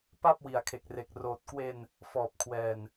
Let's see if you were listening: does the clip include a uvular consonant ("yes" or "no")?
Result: no